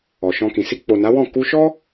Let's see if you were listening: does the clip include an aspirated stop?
no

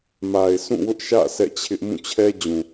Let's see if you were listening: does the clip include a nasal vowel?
yes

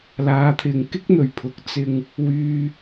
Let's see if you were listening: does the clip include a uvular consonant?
no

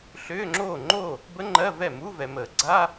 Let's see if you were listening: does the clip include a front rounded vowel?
yes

